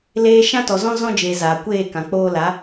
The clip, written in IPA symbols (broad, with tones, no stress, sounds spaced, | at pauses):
l eː˧ ʃ ã˦ t ɔ˨ z ɔ̃˦ z ɔ̃˦ d͡ʒ eː˨ z a˨ kʷ eː˦˨ k ã˨ k͡p oː˦ l a˨˦